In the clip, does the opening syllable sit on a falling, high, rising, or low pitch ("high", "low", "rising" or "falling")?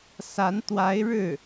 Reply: rising